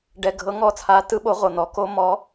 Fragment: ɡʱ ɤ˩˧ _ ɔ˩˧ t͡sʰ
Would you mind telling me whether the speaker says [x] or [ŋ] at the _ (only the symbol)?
ŋ